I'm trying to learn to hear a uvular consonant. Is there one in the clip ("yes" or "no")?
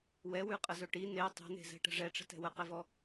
yes